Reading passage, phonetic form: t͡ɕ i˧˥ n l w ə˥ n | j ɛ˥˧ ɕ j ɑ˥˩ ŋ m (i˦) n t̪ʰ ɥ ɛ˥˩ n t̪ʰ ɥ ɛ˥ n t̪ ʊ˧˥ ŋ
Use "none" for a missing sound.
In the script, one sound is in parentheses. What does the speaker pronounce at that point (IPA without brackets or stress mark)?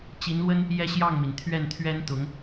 i˩